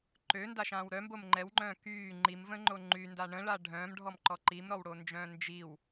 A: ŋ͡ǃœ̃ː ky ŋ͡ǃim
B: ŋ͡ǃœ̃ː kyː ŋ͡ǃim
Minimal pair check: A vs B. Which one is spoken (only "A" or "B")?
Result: B